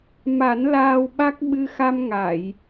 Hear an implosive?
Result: yes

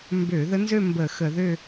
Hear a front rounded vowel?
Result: yes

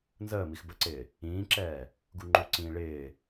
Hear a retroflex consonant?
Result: yes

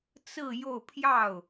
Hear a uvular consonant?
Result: no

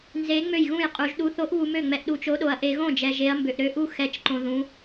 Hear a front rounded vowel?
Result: yes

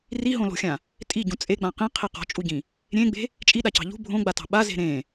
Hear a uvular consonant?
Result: yes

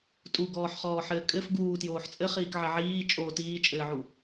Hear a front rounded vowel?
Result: no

